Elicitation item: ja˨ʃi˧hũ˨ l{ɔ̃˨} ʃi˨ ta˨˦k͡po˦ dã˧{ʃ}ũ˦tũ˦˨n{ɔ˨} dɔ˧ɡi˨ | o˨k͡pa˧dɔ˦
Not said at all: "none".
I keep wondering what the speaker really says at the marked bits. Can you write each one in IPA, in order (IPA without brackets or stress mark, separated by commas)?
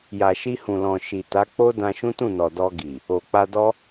ɔ̃˨, ʃ, ɔ˨